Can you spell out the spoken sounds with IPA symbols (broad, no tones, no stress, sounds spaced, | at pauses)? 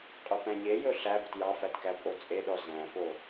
qʼ ɵ p æ̃ ɲ e j ɵ ɬ æ b ə t j ɑ f æ t k æ pʼ o t͡sʼ e ɗ ɔ z æ̃ f o